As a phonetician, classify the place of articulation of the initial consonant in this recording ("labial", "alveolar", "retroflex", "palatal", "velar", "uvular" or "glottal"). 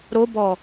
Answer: alveolar